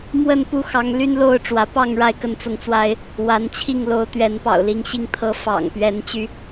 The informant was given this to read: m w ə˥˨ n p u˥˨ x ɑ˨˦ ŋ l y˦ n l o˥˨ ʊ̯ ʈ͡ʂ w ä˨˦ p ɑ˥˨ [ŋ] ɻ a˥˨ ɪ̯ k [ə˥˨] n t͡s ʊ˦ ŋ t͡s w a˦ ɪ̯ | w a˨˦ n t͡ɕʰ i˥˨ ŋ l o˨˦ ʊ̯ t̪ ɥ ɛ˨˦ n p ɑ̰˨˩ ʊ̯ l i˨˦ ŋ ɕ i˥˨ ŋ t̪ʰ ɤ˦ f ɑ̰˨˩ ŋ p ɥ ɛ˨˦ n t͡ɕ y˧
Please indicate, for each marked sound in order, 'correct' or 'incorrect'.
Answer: correct, correct

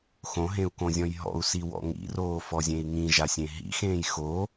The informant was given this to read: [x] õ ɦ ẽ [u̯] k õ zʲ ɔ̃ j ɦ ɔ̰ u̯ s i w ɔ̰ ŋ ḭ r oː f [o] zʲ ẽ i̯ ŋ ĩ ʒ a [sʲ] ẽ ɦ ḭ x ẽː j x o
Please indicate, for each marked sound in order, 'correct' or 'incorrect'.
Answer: correct, correct, incorrect, correct

